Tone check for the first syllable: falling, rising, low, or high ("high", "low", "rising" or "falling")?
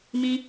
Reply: high